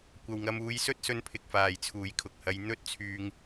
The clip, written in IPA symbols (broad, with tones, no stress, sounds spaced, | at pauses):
kʷ ɐ˨ w ŋ ɐ˧ m uː˧ j s ɵ˥ t̚ s ɵ˧ n pʰ ɪ˨ k̚ f aː˨˩ j t͡sʰ uː˨˩ j kʰ ʊ˨ k̚ h ɐ˨˧ j n̪ ɵ˥ t̚ t͡sʰ yː˧ ŋ